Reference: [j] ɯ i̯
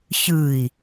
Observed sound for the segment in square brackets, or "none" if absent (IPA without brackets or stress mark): ç